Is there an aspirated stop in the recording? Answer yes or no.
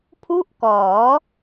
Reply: yes